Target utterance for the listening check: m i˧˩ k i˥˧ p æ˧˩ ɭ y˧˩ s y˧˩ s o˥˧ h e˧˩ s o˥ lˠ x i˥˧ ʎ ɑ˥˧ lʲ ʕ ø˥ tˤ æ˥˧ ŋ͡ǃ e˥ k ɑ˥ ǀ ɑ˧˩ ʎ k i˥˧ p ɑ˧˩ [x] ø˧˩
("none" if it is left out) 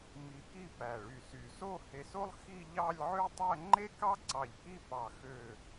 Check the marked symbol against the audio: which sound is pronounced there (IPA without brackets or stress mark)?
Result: x